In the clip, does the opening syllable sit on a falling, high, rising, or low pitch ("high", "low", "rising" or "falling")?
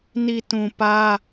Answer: low